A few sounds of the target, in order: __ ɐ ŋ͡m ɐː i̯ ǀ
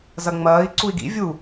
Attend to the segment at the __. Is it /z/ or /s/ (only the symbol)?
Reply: z